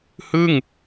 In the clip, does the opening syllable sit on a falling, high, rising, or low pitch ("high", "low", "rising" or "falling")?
falling